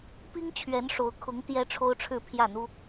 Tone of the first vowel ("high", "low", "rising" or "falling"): high